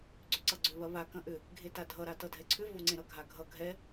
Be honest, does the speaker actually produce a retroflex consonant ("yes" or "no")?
no